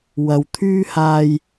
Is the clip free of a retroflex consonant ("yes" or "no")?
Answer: yes